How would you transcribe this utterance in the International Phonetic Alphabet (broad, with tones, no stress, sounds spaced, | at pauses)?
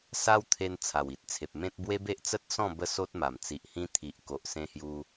s a˦ w t̪ʰ e˧ n t͡sʰ a˨˩ w i˨ t̚ t͡sʰ e˨ p̚ m ẽ˦ t̚ b w e˦ b e˦ ʔ t͡s ə˦ t̚ s ɔ̃˥˧ b ə˥˧ s o˦ t̚ m a˨˩ m t͡s i˨ ʔ h ĩ˧ t̪ʰ i˨ ʔ k o˨ ʔ s ẽ˧ h j u˧